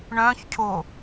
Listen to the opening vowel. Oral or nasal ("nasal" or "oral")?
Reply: nasal